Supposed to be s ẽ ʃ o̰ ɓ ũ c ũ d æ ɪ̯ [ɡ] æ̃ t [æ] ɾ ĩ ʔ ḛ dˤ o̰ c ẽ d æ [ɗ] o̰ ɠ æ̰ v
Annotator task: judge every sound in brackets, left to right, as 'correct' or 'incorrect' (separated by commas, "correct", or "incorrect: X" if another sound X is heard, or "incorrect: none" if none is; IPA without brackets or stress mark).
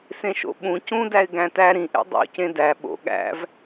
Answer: correct, correct, incorrect: ɓ